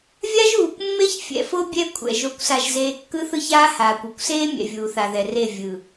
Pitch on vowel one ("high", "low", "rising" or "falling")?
high